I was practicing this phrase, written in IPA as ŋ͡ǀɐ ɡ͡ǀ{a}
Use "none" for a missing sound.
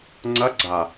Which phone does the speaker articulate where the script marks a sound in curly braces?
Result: a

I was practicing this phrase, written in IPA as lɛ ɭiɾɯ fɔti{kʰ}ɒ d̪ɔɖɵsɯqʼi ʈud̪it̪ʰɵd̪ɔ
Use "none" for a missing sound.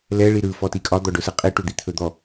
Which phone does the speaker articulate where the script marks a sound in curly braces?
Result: kʼ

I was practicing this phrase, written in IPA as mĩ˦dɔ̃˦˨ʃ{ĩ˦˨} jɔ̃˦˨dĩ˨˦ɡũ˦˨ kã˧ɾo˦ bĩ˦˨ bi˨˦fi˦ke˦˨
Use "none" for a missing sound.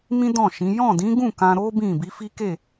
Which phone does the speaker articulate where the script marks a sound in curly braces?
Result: ĩ˨˦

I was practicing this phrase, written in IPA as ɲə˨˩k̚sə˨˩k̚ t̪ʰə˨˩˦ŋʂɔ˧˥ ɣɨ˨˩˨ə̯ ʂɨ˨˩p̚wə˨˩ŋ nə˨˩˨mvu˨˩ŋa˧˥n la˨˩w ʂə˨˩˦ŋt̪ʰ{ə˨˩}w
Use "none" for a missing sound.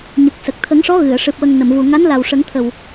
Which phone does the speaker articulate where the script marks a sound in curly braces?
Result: ə˨˩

